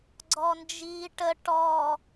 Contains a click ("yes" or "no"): yes